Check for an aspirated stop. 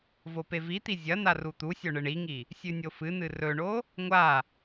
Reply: absent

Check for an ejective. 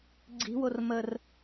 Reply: absent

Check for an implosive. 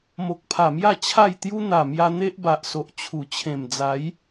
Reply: absent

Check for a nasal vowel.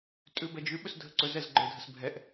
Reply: absent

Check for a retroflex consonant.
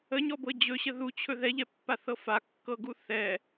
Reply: absent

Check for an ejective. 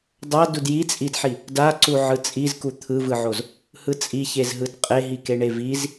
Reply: present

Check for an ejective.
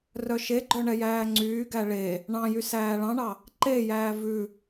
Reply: absent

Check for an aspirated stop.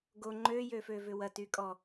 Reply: absent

